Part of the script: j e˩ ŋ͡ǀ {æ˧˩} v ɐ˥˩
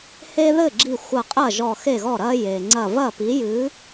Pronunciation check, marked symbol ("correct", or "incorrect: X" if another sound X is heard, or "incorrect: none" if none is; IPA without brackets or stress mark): incorrect: ɐ˧˩